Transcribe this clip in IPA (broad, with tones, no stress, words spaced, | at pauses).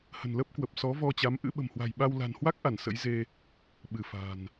hə̤˨˩nlə˦˥p̚kwə˨˩p̚ sɔ˨˦vɔ˧t͡ɕa˨˦m ʔɨ̰˧˥ɓə̤˨˩mhwa̤˨˩jɓa˧w la̤˨˩nhwa˦˥k̚ʔa˧˩n sə̰˧˥jze˧ | ɓɨ˧˩fa̤˨˩n